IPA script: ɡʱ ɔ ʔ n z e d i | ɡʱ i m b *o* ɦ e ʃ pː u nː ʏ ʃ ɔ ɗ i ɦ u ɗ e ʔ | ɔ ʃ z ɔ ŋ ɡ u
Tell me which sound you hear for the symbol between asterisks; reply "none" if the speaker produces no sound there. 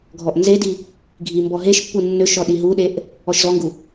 ɔ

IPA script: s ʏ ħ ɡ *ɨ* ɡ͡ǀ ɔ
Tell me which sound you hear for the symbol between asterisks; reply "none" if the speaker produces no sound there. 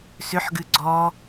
ɨ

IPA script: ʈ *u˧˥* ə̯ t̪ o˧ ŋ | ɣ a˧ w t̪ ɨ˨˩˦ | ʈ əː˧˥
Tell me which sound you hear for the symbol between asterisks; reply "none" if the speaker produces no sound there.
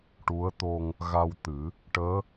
u˧˥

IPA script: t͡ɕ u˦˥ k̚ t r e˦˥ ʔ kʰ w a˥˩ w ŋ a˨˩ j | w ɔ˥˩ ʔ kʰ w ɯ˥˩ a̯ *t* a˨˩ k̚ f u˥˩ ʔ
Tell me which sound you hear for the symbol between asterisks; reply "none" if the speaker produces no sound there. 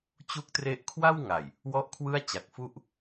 t͡ɕ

